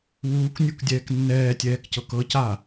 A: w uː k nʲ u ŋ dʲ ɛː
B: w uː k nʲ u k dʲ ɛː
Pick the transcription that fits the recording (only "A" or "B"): B